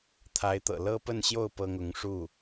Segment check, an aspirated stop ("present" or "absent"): present